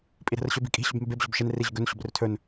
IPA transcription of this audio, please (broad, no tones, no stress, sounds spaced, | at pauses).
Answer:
pʼ i ɾ ɛ̤ r ɕ ɵ b i̤ kʼ i̤ ɕ ʏ b m e b e b ʑ o̤ b ʃ e n r i ʑ ʏ ɡ ɵ n ɕ o̤ b r ʏ tʰ ɵ n